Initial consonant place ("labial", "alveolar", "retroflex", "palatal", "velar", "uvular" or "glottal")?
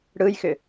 retroflex